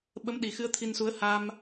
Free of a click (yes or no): yes